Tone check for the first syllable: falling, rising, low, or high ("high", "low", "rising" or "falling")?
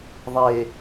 low